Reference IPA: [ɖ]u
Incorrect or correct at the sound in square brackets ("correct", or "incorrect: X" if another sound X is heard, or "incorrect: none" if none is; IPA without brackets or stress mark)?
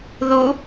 incorrect: ð